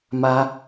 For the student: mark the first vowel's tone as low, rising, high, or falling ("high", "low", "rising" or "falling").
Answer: high